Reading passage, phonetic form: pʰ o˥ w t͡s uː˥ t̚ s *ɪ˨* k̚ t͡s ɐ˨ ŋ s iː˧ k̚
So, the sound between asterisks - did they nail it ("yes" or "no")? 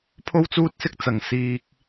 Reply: no